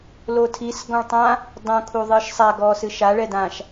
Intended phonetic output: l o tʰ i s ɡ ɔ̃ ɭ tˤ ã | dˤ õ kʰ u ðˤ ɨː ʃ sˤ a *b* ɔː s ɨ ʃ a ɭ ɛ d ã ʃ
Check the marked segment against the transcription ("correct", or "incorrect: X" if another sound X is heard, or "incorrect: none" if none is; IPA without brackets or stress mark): incorrect: ɡ